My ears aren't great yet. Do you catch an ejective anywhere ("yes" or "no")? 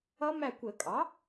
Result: yes